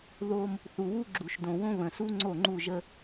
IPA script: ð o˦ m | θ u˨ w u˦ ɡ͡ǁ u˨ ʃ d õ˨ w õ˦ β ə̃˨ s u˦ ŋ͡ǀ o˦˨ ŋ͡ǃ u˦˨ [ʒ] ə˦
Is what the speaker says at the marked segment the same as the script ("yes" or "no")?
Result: yes